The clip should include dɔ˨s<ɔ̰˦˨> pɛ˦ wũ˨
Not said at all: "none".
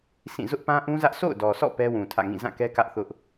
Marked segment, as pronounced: ɔ̰˦˨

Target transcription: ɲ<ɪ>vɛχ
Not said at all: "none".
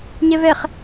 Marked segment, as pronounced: ɛ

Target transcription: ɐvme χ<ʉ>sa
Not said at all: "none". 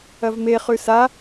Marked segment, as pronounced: ʉ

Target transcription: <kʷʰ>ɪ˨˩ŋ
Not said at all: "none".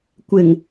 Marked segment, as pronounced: kʷ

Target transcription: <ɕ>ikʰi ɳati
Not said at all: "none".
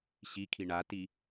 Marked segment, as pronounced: ɕ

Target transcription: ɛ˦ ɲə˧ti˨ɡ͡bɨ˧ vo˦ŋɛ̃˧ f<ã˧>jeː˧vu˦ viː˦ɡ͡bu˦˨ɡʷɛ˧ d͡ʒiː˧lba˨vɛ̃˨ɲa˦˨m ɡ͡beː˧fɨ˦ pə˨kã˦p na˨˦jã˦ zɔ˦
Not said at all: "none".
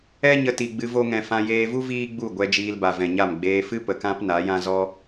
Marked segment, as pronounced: ã˧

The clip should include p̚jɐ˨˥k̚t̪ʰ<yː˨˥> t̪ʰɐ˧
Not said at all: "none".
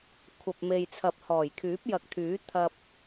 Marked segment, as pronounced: yː˨˥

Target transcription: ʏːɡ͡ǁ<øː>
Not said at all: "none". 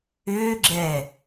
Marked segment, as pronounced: ɛː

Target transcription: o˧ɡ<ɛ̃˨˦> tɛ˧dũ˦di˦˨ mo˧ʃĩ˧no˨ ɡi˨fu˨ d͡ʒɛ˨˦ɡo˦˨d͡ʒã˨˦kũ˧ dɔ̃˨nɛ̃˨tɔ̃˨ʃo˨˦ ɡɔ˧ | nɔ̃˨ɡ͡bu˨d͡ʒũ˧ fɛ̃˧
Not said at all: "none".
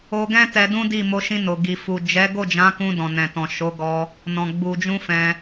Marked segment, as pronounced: ɛ̃˦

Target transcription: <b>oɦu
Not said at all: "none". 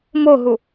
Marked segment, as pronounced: m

